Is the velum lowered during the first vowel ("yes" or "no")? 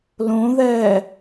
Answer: yes